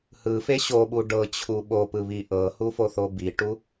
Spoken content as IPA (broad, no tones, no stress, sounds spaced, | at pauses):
h ɯ f e ɕ o ɓ u ɖ ɤ t͡ɕʰ u ɓ o p ɯ β i ʔ ɤ h u f o θ o b i ʈ u